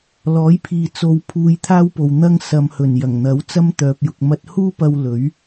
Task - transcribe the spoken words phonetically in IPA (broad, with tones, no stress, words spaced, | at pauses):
lɔː˨˥jpʰiː˨ t͡so˧wpʰuː˧j t̪ʰaː˥wpo˨w n̪ɐ˥ŋ sɐ˨mhɵ˨˩n jɐ˨˩ŋn̪ɐ˨˥wt͡sɐ˥m t̪œː˧p̚jʊ˧k̚mɐ˥t̚ huː˥pɐ˧w lɵ˨˥ɥ